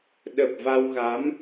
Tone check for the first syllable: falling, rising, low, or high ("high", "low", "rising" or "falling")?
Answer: low